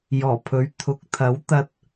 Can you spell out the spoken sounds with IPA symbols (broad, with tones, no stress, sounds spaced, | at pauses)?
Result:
j ɔː˨˩ pʰ ɵ˨˥ ɥ t̪ʰ ʊ˨˥ k̚ t̪ʰ ɐ˨˥ w t̪ ɐ˧ t̚